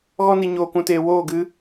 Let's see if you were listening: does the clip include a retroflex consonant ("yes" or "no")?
no